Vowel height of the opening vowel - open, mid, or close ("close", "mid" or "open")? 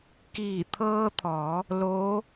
close